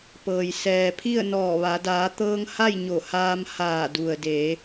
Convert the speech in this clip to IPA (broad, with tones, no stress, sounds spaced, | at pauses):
p ɤː˩ j s ɛː˩ pʰ i˥˨ ə̯ n ɔː˧˩ ʋ a˩˧ d aː˩˧ t̪ ɤː˧ ŋ h a˥˨ j ɲ o˧˩ h aː˧ m h aː˧˩ d u˩ ə̯ d eː˩˧